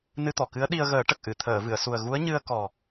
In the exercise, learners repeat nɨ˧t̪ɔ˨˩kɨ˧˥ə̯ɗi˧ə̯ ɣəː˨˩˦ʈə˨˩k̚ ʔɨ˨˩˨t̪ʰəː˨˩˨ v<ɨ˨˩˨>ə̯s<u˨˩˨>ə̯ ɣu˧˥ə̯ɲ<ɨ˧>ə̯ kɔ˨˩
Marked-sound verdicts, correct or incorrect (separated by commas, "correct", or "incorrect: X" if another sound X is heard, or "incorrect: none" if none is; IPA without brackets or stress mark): correct, incorrect: u˨˩, correct